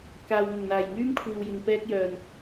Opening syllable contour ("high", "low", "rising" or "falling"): low